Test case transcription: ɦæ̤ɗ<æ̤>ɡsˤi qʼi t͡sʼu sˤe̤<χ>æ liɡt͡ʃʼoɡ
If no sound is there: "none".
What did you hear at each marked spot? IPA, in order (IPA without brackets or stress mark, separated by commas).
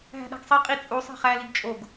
æ̤, χ